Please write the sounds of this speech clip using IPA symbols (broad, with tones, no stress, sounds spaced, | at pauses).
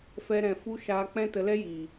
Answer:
f ɛ˧ ɾ ɛ̃˨ f u˦ ʃ aː˦ k͡p ɛ̃˦ t ə˧ l ɛ˦ j iː˨